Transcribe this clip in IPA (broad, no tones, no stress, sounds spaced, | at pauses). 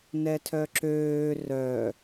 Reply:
n ɛ tʰ œ ǁ øː r œ